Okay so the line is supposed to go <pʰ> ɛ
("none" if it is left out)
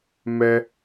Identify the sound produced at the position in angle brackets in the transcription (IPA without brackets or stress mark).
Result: m